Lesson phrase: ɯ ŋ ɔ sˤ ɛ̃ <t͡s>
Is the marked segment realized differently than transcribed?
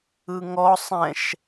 yes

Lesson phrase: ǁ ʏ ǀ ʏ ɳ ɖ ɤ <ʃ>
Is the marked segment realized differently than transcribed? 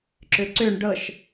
no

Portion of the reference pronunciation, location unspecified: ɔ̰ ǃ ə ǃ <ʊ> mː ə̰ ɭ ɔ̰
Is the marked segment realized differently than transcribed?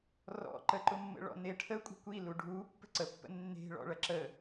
no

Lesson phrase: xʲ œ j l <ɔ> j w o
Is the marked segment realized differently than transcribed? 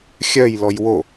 no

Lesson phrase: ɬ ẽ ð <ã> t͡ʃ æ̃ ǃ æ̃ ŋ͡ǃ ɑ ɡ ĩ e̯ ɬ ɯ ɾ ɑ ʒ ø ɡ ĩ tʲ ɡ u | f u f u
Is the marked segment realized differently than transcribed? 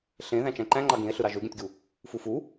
yes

